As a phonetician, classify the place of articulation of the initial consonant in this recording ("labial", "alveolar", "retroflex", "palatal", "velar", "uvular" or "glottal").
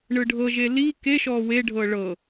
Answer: retroflex